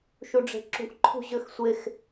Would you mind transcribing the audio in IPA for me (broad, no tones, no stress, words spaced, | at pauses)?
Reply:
ʃuɖ͡ʐe̤ǁṳʔ ǃʰṳʑøxsʷex